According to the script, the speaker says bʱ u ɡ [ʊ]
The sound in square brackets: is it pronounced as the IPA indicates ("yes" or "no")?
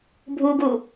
no